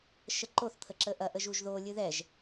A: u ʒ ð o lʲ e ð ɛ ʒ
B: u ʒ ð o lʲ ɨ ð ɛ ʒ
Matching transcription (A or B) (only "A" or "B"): B